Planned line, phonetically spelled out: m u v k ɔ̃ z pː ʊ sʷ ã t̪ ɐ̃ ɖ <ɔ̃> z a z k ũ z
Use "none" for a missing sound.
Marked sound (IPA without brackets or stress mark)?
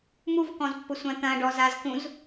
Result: ɔ